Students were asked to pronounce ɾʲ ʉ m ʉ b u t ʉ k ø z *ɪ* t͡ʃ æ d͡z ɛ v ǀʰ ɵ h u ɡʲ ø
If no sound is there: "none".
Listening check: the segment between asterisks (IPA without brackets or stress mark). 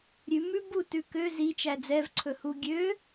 i